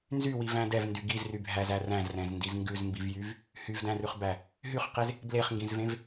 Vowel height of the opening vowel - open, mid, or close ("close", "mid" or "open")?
close